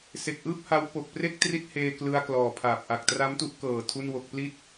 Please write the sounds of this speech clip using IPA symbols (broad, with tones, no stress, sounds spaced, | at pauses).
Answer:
s e˨˩ k̚ ʔ ɯː˥˩ p̚ h a˦˥ w p o˨˩ k̚ p r e˥˩ k̚ t r i˦˥ t̚ h eː˧ k l ɯ˧ a̯ k l ɔː˨˩ pʰ aː˨˩ p̚ ʔ a˨˩ k̚ t r a˦˥ m t u˦˥ ʔ k ɤː˨˩ tʰ u˥˩ n w o˥˩ k̚ p l i˥˩ t̚